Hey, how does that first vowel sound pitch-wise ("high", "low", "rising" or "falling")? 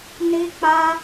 high